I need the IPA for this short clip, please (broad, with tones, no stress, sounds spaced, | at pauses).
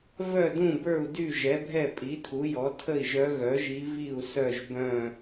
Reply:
v œ˥˨ d ũ˥˨ b ə˞˥˨ u̯ d y˥˨ ʒ ɛ˩˥ bʱ ɛ˥˨ pʼ i˩˥ tʰ u˩˥ j ɔ˩˥ tʰ ə˥˨ i̯ ʒ œ˧˥ ɣ œ˩˥ ʒ i˧˥ v i˥˨ u̯ s œ˥˨ ʒ b œ̃˥˨